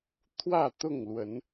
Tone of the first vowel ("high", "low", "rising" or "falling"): falling